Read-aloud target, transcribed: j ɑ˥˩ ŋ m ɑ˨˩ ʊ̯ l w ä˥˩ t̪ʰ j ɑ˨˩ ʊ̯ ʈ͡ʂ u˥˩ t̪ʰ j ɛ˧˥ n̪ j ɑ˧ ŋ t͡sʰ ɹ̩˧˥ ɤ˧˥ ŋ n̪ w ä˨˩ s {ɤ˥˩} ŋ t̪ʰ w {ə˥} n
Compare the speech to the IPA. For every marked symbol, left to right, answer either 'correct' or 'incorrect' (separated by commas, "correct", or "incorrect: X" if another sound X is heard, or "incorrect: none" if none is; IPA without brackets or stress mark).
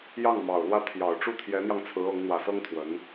incorrect: ɤ˥, incorrect: ə˧˥